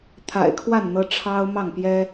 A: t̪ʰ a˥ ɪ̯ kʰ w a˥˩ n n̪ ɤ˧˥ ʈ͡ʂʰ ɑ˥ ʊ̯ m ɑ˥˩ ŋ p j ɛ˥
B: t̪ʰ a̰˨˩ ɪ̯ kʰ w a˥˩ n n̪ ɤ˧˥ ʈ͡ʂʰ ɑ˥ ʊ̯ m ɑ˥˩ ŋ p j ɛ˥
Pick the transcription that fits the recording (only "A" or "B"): B